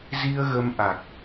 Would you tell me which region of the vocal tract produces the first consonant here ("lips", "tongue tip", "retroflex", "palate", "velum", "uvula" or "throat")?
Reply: tongue tip